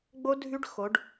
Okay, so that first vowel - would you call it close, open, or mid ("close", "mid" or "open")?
mid